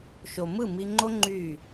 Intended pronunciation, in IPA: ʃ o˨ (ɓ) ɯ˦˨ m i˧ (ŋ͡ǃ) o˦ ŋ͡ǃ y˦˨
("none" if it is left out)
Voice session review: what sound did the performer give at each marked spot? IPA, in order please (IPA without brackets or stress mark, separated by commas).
m, ŋ͡ǃ